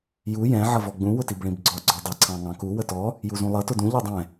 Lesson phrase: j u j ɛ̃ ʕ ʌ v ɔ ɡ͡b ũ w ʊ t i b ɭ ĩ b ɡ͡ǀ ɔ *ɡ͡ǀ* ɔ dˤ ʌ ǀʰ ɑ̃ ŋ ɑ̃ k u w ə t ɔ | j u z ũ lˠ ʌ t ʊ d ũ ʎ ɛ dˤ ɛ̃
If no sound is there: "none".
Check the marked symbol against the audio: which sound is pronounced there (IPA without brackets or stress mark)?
ɡ͡ǀ